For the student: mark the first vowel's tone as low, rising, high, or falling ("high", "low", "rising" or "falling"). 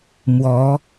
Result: rising